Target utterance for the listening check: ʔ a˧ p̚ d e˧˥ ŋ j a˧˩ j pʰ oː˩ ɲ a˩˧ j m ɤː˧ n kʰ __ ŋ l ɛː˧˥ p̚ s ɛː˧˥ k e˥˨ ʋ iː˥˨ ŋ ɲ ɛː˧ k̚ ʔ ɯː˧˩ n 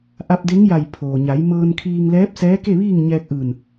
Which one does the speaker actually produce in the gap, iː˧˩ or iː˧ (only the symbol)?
iː˧